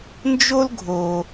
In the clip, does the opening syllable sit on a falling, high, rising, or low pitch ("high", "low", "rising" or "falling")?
high